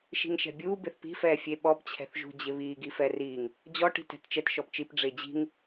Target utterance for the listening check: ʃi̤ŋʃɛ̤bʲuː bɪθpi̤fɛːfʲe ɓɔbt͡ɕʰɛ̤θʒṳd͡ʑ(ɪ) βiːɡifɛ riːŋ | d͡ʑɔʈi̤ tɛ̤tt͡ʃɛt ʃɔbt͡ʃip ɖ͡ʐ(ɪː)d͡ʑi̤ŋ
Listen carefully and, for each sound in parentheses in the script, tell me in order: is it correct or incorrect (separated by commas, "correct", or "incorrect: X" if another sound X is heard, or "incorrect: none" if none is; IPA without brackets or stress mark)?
correct, correct